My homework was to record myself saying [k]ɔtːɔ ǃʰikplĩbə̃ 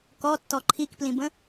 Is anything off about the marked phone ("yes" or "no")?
no